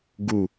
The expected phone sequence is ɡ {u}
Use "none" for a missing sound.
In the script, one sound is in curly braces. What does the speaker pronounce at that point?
u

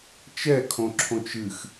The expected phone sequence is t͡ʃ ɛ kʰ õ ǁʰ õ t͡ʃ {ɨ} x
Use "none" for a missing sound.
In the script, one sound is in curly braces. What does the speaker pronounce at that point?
ɨ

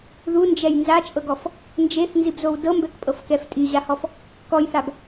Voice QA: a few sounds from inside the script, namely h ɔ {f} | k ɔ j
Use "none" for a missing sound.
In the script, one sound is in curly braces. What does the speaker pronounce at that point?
f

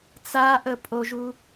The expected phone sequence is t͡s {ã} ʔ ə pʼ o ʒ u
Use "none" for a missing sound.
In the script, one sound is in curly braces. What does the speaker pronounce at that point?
a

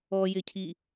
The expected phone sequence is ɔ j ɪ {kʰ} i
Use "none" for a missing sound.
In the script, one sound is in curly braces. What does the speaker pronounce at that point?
cʰ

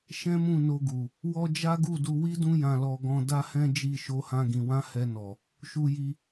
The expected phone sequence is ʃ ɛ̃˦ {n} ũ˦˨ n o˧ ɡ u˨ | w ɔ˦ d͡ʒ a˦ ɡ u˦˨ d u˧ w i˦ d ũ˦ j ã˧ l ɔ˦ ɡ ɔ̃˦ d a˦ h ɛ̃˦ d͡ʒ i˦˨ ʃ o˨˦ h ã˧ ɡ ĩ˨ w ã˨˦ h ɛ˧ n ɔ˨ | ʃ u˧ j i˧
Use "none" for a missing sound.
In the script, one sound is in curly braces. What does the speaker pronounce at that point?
m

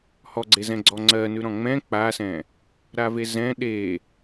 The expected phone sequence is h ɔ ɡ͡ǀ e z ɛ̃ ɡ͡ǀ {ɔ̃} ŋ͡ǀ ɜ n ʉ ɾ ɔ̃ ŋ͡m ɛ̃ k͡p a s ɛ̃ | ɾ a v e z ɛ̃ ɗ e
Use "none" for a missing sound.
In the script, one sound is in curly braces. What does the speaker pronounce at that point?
ɔ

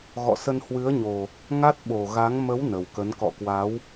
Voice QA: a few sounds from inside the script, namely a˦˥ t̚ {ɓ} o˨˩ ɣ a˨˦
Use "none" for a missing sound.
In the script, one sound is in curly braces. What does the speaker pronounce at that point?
ɓ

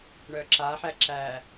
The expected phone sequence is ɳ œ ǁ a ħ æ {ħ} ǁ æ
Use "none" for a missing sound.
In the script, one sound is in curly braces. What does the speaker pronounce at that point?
none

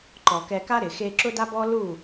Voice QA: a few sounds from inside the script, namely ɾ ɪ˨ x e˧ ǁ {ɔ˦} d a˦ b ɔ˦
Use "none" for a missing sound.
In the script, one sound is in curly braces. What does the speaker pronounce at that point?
ʊ˦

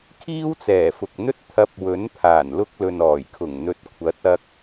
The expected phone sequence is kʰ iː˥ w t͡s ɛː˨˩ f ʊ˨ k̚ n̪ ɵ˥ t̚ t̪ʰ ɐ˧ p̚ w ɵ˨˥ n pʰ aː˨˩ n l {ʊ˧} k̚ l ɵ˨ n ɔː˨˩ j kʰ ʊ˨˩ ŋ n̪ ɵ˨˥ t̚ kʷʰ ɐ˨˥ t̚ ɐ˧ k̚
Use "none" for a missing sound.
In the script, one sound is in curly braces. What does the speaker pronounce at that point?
ʊ˧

